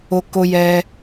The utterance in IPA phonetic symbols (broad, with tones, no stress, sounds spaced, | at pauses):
o˧ k o˧ j ɛ˧